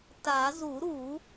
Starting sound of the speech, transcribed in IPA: t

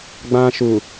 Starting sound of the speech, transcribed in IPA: ɡ͡b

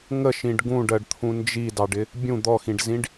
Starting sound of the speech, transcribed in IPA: ŋ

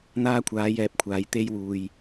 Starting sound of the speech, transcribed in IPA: n̪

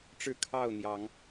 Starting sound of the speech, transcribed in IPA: ʈ͡ʂ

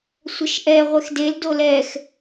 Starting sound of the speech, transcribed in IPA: sʷ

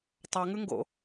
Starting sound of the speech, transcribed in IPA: tˤ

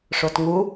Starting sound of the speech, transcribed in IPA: ʂ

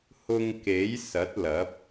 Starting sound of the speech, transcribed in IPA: h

